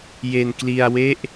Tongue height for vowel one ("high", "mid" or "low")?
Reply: mid